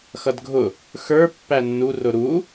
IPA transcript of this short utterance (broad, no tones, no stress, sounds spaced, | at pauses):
x ʌ d ɡʱ ʊ | x ə˞ pː æ nː u r ʊ ɾ u